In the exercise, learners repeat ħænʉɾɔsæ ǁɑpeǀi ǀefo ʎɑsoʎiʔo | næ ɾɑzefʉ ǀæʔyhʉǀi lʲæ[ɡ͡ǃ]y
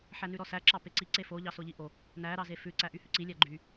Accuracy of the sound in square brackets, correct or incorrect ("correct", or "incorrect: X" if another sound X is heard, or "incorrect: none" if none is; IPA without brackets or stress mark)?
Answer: correct